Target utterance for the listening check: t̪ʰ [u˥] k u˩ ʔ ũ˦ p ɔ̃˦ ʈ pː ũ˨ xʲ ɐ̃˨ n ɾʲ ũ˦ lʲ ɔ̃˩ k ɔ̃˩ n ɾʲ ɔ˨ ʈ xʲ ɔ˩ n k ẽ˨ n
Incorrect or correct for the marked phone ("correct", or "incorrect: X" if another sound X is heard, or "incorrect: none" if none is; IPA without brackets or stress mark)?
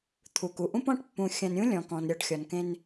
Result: incorrect: u˩